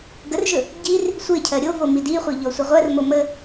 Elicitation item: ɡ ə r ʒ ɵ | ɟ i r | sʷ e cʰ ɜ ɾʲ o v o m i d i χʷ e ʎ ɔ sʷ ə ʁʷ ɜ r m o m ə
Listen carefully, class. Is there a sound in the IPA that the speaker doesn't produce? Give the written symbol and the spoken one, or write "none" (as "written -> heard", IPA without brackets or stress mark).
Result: none